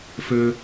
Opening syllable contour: high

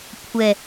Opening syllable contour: low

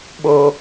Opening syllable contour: high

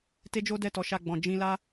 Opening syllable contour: high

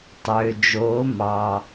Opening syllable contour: low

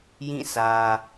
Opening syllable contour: falling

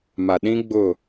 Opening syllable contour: low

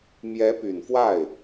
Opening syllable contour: rising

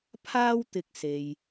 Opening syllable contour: high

